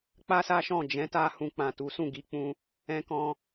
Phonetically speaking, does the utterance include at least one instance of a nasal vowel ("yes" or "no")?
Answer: yes